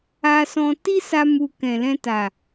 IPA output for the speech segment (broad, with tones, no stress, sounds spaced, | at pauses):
a˧ s ɔ̃˧ t i˦ s a˧ m u˨ k ɛ̃˨ l ɛ̃˧ t a˨